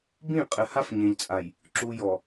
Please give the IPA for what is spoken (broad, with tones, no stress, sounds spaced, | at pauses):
b ĩ˦˨ qʼ ɘ˨ h a˦ f ɲ ẽ˨ ʎ t͡sʼ a˨ j | ǁ u˨ j ɔ˨